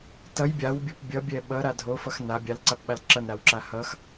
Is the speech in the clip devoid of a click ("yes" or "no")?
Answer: no